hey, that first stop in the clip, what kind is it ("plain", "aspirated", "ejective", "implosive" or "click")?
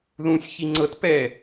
click